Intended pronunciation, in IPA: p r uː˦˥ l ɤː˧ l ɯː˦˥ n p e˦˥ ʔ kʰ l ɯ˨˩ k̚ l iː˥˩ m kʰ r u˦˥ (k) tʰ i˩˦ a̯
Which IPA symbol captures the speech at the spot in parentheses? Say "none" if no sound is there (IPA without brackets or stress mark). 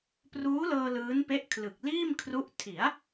ʔ